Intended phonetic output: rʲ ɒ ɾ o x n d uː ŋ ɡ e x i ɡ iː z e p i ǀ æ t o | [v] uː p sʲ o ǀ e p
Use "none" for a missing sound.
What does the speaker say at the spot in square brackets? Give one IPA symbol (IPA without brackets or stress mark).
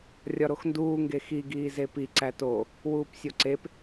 w